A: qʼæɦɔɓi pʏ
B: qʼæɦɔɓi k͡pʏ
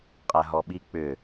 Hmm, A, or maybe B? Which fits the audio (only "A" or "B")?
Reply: B